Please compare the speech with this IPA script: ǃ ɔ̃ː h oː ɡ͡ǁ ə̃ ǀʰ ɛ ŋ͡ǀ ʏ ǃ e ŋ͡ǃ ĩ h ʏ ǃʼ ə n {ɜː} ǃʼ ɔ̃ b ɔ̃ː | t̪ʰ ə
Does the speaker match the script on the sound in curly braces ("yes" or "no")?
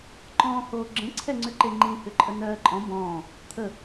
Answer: yes